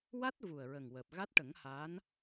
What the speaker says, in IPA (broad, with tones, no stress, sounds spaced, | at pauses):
w a˦˥ t̚ v u˨˩ ə̯ ɹ ə˨˩ ŋ w əː˨˩ p̚ ɣ a˦˥ t̚ ʈ ə˨˩˦ ŋ h aː˧˥ n